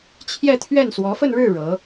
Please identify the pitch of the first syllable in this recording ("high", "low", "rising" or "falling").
falling